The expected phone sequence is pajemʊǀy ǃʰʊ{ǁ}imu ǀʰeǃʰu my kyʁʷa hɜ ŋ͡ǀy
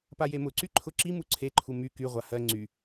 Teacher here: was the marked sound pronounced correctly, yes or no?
yes